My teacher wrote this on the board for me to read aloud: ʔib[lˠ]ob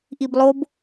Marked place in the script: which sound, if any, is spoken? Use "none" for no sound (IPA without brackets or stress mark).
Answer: lˠ